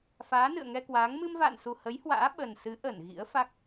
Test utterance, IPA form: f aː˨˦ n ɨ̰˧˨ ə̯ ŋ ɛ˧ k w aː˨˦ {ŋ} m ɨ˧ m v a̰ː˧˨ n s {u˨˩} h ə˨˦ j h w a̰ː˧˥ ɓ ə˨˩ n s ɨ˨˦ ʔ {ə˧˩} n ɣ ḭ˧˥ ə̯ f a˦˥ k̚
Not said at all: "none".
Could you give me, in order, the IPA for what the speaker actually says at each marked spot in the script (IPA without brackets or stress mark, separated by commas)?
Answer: ŋ, u˨˩, ə˧˩